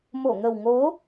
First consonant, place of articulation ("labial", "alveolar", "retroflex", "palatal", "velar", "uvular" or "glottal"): labial